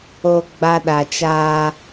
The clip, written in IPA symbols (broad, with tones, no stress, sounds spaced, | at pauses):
o˨ ɡ͡b a˦ ɗ a˨ t͡ʃ aː˦